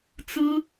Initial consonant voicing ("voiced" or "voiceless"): voiceless